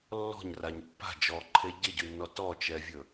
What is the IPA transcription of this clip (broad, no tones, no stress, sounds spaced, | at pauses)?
lː ɔ̤ ɲ r a ɲ pː a̤ d͡ʒ ɔ ǃʰ e ɟ ɪ ɟ ʉ nː ɔ t ɔ t͡ʃ ɛ vʲ ɵ